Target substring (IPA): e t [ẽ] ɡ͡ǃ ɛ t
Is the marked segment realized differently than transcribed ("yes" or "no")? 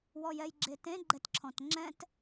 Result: no